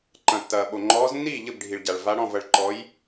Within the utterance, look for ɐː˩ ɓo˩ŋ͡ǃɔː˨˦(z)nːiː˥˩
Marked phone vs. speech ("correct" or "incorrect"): correct